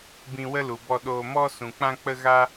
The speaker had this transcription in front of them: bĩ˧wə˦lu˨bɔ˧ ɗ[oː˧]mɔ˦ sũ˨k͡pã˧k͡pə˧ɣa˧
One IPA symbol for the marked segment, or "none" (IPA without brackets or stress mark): oː˧